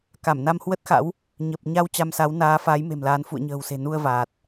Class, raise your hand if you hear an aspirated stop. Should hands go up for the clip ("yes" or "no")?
no